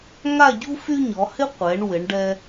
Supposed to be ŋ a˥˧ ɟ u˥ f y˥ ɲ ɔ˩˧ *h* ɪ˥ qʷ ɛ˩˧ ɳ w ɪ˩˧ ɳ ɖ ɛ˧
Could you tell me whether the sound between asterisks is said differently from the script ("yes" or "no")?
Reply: no